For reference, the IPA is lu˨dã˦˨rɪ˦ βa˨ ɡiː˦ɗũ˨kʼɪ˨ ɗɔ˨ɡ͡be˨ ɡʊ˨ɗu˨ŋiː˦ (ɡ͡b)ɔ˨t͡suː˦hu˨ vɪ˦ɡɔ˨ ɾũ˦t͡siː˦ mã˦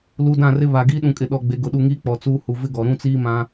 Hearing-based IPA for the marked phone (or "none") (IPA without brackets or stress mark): k͡p